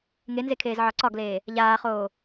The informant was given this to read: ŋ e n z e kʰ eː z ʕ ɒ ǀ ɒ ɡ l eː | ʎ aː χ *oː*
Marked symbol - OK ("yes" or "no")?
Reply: yes